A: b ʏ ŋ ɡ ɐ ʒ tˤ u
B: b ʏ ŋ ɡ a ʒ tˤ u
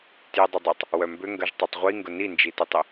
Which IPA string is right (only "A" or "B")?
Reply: A